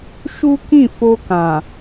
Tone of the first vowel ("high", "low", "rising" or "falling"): high